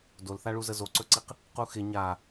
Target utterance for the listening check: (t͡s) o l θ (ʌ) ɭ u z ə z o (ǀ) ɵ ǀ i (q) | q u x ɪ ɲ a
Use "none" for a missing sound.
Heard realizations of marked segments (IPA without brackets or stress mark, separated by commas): d, a, ǀ, q